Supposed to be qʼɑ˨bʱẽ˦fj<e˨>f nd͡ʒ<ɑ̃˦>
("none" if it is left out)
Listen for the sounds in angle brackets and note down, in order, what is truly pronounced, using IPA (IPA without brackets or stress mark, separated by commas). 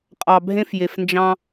e˨, ɑ̃˦